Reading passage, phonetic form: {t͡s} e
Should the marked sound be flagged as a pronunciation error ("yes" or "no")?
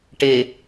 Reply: yes